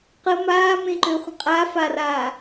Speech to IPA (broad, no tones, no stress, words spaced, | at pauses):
qə maːmẽǃøχʷə̃ qʼafaraː